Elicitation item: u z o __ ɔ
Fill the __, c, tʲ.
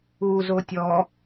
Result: tʲ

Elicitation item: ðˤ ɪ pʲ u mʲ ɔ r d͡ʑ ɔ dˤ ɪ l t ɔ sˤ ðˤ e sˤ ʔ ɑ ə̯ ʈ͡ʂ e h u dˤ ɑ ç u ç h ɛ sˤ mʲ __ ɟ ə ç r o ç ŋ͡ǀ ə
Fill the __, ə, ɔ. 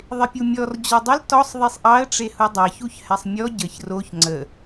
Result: ɔ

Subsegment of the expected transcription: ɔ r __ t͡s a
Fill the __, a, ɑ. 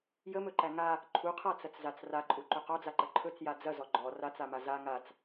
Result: a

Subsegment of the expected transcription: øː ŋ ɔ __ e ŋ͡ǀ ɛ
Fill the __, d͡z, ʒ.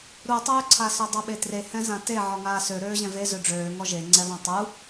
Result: ʒ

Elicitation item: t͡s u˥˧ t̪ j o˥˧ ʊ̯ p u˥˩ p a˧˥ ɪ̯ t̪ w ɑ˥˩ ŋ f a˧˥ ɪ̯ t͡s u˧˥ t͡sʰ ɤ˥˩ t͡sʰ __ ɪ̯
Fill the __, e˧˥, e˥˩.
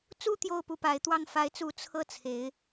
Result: e˧˥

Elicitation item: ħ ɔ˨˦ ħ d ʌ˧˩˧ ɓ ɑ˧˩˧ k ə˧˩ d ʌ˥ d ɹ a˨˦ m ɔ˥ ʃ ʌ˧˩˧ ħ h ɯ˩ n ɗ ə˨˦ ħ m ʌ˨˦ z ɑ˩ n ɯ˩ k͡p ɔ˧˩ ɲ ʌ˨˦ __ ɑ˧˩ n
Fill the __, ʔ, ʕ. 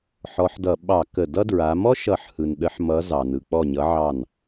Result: ʕ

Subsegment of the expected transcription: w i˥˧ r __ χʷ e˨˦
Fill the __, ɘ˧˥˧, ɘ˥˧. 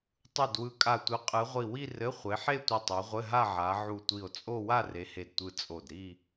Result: ɘ˧˥˧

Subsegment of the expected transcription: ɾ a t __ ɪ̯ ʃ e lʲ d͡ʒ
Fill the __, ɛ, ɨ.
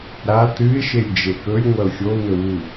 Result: ɨ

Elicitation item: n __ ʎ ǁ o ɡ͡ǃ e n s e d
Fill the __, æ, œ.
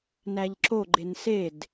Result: æ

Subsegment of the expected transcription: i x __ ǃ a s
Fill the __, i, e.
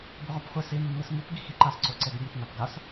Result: i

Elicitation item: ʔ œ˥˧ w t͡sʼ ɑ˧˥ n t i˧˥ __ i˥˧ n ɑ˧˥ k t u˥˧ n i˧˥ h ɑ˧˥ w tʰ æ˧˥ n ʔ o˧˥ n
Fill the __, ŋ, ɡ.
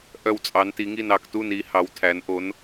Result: ŋ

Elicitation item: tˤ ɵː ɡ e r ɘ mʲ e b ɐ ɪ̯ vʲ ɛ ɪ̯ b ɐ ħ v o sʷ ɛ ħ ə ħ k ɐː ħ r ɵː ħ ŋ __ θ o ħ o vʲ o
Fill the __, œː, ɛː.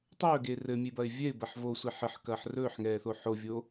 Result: ɛː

